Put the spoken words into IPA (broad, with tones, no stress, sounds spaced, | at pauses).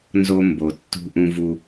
n z o˦ m b o˨ tː ṳ˦ ʔ ũ˦ v u˦